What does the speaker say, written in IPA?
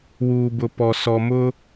w uː˨ b ʊ˨ p ɔ˨ s ɔ˨ m ʊ˦

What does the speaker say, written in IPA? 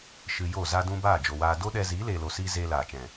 ʃ ɨ˧ j o˦˨ z a˧ d ũ˧ b aː˦˨ d͡ʒ o˨ w aː˧ d o˦ ɗ ɛ˧ z iː˨˦ l eː˨ l o˨ s iː˧ z eː˧ l aː˨ t͡ʃ ɛ̃˨

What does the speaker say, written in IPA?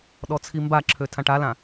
ɗ ɔ t͡sʰ i m b a ǁʰ ø tʰ ã ʈ a l ã

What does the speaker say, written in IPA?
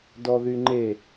d ɔ ð y ŋ͡ǃ e

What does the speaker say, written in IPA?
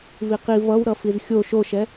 v i q i v ʌ w ɾ ʌ f i z xʲ o ʃ o ʃ ɛ

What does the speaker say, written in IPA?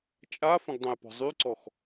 t͡ʃʼ a f ə̃ ɡ dˤ ə̃ j p ɔ̤ zˤ y ǀ ɔ x

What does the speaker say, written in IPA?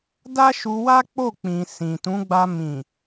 d a˦ ʃ u˧ w a˦ k͡p o˦˨ k͡p ĩ˨ s ĩ˨ t ũ˨˦ ɡ͡b a˧ m ĩ˨

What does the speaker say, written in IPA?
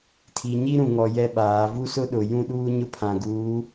tʰ i˨ ɲ i˦ ɾ ũ˨ ŋ ɔ˨ j ɛ˦ ɓ aː˨˦ v u˦ s ʊ˦ ɗ ʊ˨ j ũ˦ ɗ uː˦ ɲ ʊ˦ pʰ ã˨ ɡ uː˨˦

